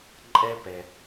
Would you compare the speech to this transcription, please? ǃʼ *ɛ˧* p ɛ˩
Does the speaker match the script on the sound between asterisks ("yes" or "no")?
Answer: yes